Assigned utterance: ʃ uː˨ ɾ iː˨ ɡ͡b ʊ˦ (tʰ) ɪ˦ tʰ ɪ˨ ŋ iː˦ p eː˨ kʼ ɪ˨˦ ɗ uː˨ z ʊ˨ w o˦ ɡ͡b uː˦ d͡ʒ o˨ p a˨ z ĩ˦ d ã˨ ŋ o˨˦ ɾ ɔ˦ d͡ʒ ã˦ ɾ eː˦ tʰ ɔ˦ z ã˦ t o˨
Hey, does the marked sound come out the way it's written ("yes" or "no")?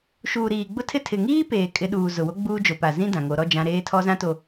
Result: yes